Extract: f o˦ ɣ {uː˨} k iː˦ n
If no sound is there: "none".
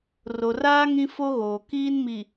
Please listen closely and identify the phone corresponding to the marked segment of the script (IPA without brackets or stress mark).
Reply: oː˨